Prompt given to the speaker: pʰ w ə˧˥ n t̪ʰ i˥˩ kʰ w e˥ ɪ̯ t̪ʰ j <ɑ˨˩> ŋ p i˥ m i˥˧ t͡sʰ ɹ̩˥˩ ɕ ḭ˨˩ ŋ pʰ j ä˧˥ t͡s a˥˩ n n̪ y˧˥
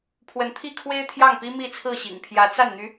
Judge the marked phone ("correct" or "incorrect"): incorrect